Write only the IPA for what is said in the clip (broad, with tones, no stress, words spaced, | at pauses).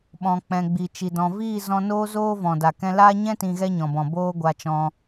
ɓɔ̃˨k͡pɛ̃˨ɡ͡bi˨t͡ʃi˨ dɔ̃˨ viː˦˨zɔ̃˧noː˦zoː˦ vɔ̃˨da˨ kɛ̃˧laː˦ɲɛ̃˦ tĩ˧ɣɛ˦ɲɔ̃˨bɔ̃˨ boː˦ɡʷa˧t͡ʃɔ̃˧